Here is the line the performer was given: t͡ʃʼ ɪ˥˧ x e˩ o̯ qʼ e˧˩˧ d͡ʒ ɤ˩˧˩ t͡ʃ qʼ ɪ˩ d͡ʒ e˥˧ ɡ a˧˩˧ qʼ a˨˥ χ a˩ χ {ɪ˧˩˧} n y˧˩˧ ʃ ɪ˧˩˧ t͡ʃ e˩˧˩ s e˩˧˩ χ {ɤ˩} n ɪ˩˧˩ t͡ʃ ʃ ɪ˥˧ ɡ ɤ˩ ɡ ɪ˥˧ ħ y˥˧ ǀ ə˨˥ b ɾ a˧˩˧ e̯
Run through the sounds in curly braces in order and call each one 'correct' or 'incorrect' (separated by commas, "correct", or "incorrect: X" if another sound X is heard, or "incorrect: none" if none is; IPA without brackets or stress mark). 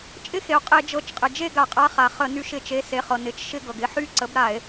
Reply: incorrect: ə˧˩˧, correct